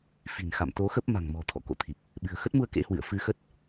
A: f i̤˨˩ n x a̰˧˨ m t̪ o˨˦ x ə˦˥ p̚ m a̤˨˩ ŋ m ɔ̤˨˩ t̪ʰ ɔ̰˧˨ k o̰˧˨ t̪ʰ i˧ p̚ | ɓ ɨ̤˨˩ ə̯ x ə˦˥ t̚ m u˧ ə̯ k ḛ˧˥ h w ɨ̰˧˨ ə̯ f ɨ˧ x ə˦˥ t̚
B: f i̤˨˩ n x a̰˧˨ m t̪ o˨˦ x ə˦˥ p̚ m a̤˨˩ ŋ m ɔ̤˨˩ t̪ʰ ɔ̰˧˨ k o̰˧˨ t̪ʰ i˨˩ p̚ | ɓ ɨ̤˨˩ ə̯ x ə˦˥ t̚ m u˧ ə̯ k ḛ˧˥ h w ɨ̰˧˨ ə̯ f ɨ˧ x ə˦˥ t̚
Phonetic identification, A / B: B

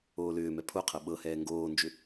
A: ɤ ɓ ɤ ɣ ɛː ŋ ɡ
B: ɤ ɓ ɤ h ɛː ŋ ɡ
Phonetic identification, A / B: B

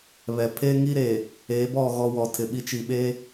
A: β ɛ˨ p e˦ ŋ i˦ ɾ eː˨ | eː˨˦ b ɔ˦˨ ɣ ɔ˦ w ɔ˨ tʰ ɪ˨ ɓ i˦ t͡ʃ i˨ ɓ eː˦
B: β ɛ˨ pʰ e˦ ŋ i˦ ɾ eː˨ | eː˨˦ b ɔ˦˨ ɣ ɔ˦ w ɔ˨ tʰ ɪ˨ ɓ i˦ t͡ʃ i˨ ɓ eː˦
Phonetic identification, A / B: B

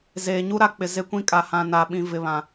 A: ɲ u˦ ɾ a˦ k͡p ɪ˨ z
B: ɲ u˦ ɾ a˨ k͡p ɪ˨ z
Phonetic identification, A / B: A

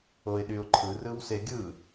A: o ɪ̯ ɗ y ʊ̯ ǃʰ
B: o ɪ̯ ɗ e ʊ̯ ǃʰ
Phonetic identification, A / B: A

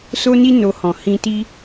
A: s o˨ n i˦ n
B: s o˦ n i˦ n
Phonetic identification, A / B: B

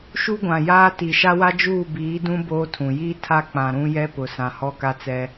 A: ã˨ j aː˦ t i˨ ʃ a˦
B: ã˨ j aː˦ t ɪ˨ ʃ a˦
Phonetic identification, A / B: A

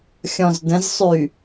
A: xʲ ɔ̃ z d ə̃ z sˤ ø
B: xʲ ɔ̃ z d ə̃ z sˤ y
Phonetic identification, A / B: B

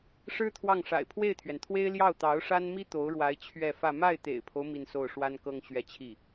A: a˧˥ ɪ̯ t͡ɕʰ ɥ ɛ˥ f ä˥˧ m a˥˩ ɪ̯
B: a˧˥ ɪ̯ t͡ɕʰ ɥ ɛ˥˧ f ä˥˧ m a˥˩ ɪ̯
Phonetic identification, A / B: B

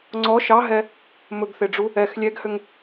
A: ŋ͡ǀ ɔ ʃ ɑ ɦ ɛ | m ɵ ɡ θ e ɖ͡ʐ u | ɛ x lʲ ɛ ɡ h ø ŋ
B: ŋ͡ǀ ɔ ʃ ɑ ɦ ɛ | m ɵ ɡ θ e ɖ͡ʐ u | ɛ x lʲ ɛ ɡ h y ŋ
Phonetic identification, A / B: A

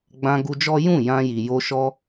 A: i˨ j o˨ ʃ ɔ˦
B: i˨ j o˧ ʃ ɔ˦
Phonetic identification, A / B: B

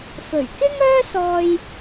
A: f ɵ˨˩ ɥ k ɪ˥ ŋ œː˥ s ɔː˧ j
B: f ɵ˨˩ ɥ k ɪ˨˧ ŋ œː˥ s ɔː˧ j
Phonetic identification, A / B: A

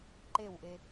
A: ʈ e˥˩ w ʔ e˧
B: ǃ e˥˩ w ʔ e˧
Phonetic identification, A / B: B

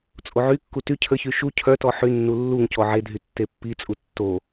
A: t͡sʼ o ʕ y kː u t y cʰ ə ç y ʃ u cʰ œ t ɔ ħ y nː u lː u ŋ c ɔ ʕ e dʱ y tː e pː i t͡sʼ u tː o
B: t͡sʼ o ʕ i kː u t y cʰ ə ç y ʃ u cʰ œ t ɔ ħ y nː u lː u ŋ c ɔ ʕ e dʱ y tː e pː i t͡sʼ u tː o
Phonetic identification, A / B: A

